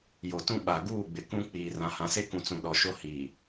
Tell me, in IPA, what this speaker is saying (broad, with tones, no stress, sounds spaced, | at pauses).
j o˨ t ũ˦ ɓ a˨ ɡ uː˦˨ ɡ͡b ɪ˨ k ũ˦ k͡p iː˨ r ã˨ h ã˨ s e˦ k ũ˨ t͡s ũ˨ ɗ ɔ˨ ʃ o˦ h iː˨